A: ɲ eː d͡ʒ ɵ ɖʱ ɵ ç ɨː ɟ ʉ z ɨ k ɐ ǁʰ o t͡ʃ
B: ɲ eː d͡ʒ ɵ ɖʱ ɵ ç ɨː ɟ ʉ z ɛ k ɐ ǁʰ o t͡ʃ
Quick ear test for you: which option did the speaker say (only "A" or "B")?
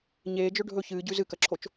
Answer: A